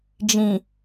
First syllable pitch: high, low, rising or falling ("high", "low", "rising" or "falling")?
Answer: low